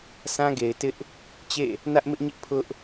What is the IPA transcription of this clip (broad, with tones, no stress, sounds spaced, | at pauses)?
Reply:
s ã˦ ɡ e˨ ɪ̯ t ɪ˦ ʔ | t͡ɕ ḛ˦˨ | n ä˦ ʔ m ɪ˦ ʔ ɲ ɪ˦ ʔ pʰ ʊ˦ ʔ